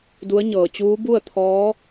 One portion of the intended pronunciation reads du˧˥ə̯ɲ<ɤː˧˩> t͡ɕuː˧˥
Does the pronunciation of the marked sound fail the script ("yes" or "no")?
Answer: no